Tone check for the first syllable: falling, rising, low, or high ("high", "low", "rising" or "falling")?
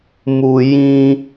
low